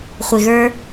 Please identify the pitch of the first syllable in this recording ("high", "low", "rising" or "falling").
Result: low